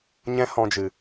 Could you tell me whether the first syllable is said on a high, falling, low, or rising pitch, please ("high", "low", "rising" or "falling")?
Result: high